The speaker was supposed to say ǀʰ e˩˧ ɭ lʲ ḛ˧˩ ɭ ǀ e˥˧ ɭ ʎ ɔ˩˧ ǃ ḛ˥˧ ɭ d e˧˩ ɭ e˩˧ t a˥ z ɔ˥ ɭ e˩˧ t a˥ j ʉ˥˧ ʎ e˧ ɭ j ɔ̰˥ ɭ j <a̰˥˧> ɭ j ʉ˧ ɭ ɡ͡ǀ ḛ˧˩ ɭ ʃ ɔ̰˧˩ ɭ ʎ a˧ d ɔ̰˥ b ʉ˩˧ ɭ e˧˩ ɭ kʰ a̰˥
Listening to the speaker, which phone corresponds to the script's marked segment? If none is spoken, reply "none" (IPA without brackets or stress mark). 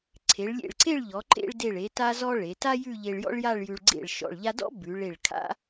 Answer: a˥˧